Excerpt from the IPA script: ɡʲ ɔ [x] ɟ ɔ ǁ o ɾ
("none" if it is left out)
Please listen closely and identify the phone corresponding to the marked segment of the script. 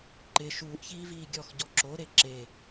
x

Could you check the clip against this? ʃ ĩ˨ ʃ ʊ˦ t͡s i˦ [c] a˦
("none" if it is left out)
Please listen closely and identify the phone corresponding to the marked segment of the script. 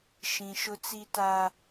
t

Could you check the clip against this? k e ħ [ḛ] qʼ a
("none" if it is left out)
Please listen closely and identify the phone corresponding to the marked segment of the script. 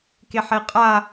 e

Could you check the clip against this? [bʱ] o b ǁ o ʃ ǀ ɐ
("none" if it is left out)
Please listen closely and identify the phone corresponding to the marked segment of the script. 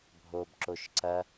bʱ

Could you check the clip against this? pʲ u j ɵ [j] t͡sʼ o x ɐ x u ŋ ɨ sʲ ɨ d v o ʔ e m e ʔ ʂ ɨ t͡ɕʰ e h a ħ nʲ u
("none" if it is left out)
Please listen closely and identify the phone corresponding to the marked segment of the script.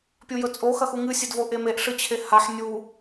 none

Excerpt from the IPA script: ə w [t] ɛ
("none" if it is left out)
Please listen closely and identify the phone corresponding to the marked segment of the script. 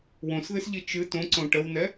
n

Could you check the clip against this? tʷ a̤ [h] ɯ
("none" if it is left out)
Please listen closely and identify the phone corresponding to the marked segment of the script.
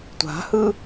h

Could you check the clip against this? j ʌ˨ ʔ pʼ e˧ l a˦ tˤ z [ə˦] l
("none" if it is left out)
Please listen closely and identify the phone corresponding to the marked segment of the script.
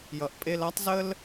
ə˦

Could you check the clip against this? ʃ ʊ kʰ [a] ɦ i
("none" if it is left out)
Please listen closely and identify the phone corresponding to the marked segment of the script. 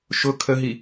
ə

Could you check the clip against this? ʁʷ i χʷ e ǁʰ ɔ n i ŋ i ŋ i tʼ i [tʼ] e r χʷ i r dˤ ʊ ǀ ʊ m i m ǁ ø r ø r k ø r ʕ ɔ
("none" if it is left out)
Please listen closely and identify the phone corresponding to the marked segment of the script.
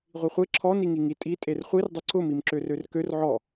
tʼ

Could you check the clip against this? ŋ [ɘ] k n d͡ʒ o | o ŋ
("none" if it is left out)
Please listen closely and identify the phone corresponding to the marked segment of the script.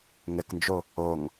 ɘ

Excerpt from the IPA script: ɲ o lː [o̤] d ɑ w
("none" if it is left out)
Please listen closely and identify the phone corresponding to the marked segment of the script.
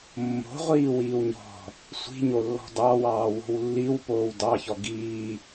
ɔ̤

